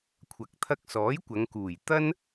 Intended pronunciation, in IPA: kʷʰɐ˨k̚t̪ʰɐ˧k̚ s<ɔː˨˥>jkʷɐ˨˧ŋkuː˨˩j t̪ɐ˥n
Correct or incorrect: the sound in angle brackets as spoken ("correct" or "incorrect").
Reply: correct